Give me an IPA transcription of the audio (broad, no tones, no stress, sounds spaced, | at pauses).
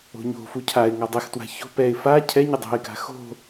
o̤ ɲ o̤ f u cʰ a ɪ̯ ŋ a dˤ ɛ x t w a̤ ç o̤ p ɛ ɪ̯ f a cʰ ɛ ɲ ɪ dˤ o̤ ɪ̯ k a̤ x o̤